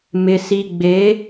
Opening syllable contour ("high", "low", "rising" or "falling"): low